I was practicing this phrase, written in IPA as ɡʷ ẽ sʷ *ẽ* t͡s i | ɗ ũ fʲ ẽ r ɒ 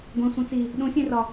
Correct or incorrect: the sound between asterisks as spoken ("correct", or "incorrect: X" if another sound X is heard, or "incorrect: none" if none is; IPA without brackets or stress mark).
incorrect: ĩ